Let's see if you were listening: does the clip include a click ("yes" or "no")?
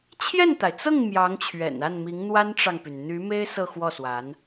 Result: no